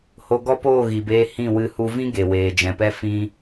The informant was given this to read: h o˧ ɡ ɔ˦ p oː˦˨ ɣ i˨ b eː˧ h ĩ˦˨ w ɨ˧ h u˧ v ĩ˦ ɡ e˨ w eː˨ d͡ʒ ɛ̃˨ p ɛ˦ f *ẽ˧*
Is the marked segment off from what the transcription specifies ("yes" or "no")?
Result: yes